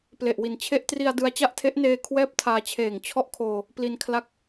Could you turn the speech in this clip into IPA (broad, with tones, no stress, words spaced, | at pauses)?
ple˨˩ʔwi˨˩nt͡ɕʰe˦˥ʔtri˧a̯ dɯ˧a̯t͡ɕa˥˩ʔtʰe˦˥ʔneː˧ kʰwɛː˥˩p̚tʰaː˧t͡ɕʰeː˨˩ŋ t͡ɕʰɔ˥˩ʔkʰoː˧ | pli˧n kʰla˥˩k̚